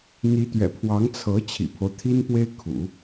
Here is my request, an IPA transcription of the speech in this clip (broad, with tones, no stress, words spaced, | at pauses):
n̪i˧˥t̪ɥɛ̰˨˩pʰwɑ˧˥ŋ t͡sʰɤ˧˥ t͡ɕʰḭ˨˩pʰo˦ʊ̯t̪ʰi˥npwe˥ɪ̯ kʰṵ˨˩˦